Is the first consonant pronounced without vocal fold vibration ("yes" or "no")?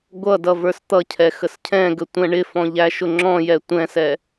no